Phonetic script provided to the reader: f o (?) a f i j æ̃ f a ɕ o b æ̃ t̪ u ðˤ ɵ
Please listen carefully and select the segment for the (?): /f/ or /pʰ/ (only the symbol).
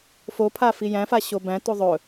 pʰ